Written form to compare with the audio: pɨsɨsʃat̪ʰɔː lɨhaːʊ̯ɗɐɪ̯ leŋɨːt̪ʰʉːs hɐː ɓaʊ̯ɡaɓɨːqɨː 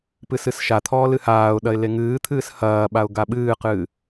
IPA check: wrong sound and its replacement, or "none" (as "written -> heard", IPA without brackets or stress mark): ʉː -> ɨː